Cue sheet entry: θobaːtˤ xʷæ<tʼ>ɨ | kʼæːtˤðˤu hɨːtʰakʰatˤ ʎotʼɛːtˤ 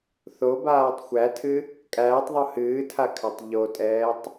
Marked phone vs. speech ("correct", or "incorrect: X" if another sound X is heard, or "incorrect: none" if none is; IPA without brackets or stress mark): incorrect: tʰ